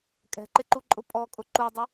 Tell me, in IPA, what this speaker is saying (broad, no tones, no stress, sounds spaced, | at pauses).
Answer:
kʼ ɛ̤ ǃ ɪ ǃ u ǃʼ ʊ pʼ ɔ kʼ ʊ ǃ u dˤ ʊ